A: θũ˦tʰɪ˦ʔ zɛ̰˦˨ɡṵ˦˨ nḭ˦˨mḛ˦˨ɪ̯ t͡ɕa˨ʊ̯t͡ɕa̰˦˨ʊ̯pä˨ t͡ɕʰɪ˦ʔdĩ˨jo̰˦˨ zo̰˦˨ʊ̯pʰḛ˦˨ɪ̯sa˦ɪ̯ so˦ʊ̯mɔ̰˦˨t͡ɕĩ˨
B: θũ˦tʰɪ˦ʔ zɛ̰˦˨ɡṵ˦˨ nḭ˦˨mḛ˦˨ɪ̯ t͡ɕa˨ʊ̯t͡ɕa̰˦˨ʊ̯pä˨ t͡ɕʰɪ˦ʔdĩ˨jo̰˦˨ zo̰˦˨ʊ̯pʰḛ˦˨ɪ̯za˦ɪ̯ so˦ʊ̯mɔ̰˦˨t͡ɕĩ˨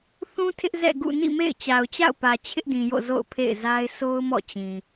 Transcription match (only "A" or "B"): B